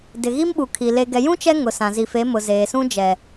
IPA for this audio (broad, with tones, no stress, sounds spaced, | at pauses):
d ɪ˨ ɣ i˦ m ɓ u˨ kʰ i˨ l e˨ ɡ ɛ˨ j ũ˦ t͡ʃ ɛ˦ ŋ ʊ˨ s ã˨ z i˨ f e˨˦ m ʊ˨ z eː˨ s ũ˦ d͡ʒ ɛ˨